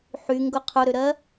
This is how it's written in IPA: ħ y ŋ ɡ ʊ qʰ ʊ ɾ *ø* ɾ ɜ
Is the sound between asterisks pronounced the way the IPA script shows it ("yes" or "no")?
yes